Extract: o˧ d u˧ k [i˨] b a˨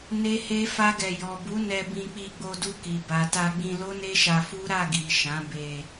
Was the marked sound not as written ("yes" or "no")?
no